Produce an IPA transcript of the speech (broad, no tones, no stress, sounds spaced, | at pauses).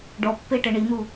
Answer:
ɖ ɔ pː e ʈ ɛ ɳ i n̪ u